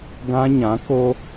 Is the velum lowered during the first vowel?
yes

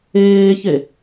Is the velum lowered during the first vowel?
no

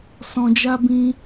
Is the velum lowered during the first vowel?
yes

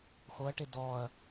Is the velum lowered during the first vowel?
no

